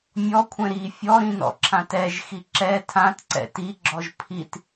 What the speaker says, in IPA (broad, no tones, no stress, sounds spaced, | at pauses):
mʲ ɔ kʷʰ ɛ̃ ɾ i fʲ ɔ ɾ ĩ n ɔ̰ ǁʰ ã t ɛ ʒ x i ǁ ɛ tʰ ã t ǀ ɛ̰ t i ɡ͡ǁ ɔ ʒ pʰ i t